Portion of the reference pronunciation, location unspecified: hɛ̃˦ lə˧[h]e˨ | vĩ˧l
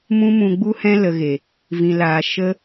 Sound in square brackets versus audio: incorrect: ɣ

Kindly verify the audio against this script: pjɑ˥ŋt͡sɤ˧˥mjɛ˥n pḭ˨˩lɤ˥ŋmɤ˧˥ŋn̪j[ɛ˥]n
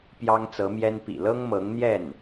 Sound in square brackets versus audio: incorrect: ɛ˥˩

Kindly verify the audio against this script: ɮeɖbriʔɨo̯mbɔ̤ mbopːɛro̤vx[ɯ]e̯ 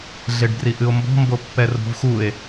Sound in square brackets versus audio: incorrect: u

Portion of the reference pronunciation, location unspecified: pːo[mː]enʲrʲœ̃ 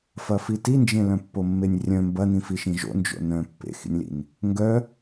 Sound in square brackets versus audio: correct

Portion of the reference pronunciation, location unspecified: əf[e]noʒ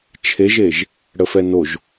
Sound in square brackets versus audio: incorrect: ɛ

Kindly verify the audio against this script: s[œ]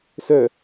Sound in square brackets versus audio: correct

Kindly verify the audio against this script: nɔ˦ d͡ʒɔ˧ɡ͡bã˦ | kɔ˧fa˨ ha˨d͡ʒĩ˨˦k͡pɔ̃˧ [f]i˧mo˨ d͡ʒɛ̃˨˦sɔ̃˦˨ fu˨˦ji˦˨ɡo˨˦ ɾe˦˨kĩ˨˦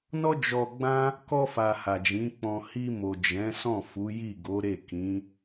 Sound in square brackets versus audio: incorrect: h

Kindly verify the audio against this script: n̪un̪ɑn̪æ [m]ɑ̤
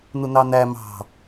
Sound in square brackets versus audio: correct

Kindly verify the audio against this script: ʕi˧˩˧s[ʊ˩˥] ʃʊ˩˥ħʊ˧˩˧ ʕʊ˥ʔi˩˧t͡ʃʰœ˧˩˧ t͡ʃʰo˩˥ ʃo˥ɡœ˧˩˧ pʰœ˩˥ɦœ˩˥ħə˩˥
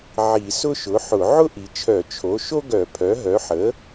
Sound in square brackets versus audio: incorrect: ʊ˥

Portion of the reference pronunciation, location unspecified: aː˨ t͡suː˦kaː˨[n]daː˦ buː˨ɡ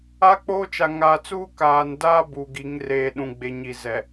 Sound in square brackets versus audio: correct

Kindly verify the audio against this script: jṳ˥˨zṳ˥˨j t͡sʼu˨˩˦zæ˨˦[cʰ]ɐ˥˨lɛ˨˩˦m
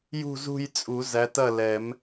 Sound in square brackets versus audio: incorrect: t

